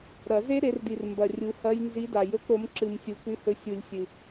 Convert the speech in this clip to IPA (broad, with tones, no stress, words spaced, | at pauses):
ɾɐ˨˩˦ze˦˥ ɾe˨˦rdi˨r mbɐ˨ rʲu˨˦hɐ˦˥j nzi˨˦da˨˩˦j ɵ˨˦kɾo˨˦mǁɨ˨m sʲu˨ kʉ˨˦hɵ˨˦sʲu˨˩˦lʲ sʲɨ˨